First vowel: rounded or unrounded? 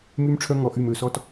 rounded